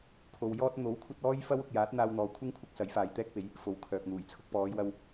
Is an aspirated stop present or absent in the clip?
present